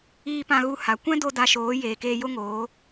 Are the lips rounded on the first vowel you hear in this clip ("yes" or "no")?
no